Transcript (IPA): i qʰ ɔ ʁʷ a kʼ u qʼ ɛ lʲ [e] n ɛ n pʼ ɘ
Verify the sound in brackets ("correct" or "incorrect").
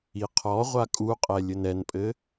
incorrect